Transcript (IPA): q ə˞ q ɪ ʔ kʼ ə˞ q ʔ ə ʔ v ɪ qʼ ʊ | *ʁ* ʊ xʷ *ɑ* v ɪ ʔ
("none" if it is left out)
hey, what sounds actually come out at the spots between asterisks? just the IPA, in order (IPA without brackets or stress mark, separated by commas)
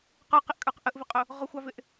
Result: ʁ, ɑ